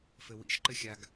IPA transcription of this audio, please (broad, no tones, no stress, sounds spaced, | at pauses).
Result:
f ɘ w ḭ ʃ ǃ ɘ xʲ a ɡ